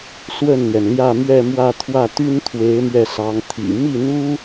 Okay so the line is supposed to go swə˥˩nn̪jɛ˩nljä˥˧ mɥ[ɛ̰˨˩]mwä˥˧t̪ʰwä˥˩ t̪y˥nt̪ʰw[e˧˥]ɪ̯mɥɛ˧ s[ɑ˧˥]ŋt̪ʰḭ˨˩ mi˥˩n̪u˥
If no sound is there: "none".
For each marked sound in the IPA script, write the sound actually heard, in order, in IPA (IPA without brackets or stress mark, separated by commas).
ɛ˥˧, e˧˥, ɑ˧˥